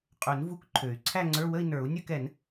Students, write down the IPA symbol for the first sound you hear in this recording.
qʼ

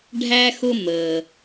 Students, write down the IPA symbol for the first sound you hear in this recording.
ɖʱ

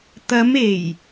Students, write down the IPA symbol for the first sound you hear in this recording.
t̪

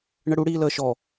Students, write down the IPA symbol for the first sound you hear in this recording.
ɳ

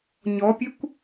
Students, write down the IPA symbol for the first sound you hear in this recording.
ɲ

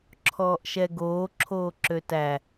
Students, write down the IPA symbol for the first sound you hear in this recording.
ǁʰ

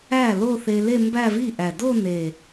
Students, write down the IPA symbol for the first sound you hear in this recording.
æ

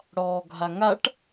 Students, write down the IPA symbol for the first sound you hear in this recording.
ɽ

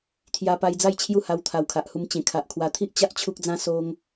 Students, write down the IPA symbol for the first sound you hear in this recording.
t̪ʰ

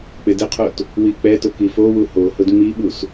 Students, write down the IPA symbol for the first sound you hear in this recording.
k͡p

